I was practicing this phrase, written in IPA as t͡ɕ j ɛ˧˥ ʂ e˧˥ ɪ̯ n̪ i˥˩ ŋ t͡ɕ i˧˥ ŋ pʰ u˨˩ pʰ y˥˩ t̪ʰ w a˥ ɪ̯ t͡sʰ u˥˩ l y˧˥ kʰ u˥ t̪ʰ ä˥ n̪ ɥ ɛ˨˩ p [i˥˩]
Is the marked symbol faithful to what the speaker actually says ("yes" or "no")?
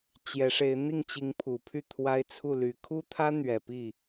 yes